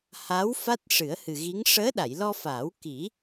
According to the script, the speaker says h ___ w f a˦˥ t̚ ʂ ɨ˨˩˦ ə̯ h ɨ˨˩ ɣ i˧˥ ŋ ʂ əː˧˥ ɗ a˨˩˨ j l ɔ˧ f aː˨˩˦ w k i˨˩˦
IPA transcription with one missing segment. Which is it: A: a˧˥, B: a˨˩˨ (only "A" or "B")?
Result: A